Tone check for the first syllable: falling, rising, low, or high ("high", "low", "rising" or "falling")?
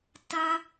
high